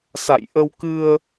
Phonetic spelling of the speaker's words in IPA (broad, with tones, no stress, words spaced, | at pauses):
sa̰˧˨jʔə˧wkɨ˧ə̯